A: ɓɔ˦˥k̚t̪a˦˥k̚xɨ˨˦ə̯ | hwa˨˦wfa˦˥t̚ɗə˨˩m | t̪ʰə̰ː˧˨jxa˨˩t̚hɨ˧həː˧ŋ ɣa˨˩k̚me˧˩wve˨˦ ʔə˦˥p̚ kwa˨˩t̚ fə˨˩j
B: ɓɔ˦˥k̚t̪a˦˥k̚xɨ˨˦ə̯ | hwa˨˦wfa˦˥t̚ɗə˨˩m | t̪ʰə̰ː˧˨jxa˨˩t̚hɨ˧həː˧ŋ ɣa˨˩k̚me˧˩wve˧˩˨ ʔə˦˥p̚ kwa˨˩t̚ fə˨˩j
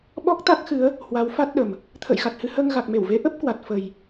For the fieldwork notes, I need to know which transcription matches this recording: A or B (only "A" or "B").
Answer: A